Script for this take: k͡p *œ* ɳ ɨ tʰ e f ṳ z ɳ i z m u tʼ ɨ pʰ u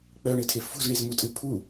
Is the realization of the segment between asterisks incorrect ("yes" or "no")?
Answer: no